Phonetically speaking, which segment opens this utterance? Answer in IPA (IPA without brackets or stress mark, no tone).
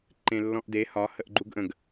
ǃ